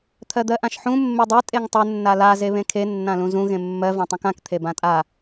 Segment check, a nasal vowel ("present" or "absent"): present